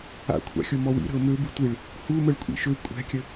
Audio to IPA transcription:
a̰ kʷʰ a̰ xʲ o m ɔ w ḭ ɾ ə̤ ʊ̯ m ø b y tʷ i ɭ | h u m ə ɭ kʷʼ ḭ ʃ ø kʷʼ ɛ̤ kʲ ə

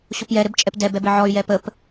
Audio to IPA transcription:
ɕ o p j ɛ ɾ ɘ b t͡ʃʼ ɛ p d ɛ b ɛ b ɘ ʕ ɔ y̯ j ɛ p ə p

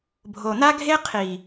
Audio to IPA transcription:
bʱ o˨ n̪ a˦ ɡʱ e˦ qʰ i˨

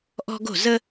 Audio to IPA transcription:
ʔ ɔ̤˦ ɡ o̤˥˨ z ə˦

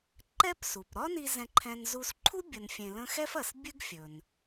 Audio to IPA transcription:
ǃ ɛ˥ p s u˩ p ɾ ɒ˥ n i˧ z ɛ̃˧ ǃʰ ɛ̃˧ n z u˧ s ǃʰ u˥ bʲ ə˧ n fʲ ẽ˧ l ə̃˥ x ɛ˥ f ɐ˩ s bʲ ɨ˥ ɡ fʲ ɵ˩ n

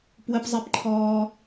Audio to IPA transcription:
p w ə˦ p zˤ e˦ p ǃʰ ɔː˦

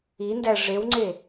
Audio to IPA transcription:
i n d æ ʐ e w ŋ͡ǀ e

